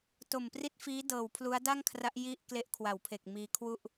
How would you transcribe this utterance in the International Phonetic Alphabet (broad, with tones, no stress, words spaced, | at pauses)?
to˨˩mpri˦˥t̚fiː˦˥ dɤː˨˩wpʰlu˦˥a̯da˥˩ŋkʰra˦˥ʔ ji˥˩ʔ kle˦˥ʔkʰwa˩˦wpʰe˨˩k̚ miː˧kʰwu˥˩ʔ